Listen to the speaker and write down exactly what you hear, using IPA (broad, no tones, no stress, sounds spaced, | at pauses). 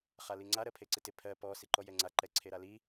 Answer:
χ a l i ŋ͡ǀ a ɾ ɜ pʰ e ǀ ɪ t ɪ pʰ ɜ p ɔ s i ǃ ɔ j ɛ ŋ͡ǀ a ǃ ɛ ǀʰ e ɾ a l i